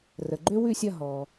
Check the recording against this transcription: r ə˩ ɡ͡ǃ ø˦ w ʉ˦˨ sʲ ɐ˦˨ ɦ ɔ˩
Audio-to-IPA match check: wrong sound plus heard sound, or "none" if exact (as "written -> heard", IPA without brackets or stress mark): none